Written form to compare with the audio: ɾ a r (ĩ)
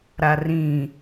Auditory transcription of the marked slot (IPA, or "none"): ĩ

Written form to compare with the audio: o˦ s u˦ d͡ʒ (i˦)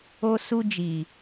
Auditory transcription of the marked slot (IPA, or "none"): i˨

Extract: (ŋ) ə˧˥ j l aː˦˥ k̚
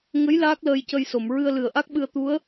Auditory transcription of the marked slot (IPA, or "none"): ŋ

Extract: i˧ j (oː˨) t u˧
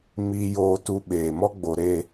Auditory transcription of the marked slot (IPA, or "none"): oː˧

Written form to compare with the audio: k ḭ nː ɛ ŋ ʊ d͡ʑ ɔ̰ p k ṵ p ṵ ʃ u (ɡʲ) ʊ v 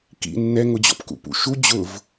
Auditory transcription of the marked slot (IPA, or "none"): d͡ʑ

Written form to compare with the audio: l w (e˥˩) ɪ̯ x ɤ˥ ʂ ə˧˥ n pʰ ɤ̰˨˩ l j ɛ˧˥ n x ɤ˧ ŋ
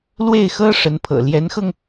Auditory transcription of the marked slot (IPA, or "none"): e˥˩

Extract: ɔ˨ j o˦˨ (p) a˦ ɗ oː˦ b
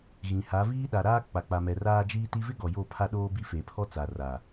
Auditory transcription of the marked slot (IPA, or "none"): pʰ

